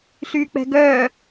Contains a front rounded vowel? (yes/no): yes